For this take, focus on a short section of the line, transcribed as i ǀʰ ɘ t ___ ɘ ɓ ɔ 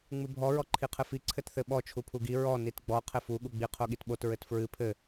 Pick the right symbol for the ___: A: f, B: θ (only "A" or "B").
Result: B